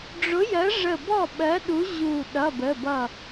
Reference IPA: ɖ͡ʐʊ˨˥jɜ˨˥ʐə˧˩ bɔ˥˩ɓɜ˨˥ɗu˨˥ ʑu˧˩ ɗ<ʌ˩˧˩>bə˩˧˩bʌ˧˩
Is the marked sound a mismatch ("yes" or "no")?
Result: no